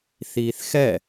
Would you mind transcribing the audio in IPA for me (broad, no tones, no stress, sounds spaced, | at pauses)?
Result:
θ iː θ x ɛ